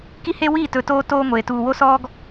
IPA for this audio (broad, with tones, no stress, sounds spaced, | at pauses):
k i˦ h e˦ w iː˦˨ t ɵ˨ t oː˦ t oː˦ ŋʷ eː˨ t uː˨ w o˦ s ɔː˦ ɡ